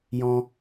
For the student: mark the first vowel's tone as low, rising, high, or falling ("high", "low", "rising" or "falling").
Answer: high